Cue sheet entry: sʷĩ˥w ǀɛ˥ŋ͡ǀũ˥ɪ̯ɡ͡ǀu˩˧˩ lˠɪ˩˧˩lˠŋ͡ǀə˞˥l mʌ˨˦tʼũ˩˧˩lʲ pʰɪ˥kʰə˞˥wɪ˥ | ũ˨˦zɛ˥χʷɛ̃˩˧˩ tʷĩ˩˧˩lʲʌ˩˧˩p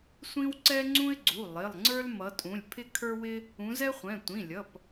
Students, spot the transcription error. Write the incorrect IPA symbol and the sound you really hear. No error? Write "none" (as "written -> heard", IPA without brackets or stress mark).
none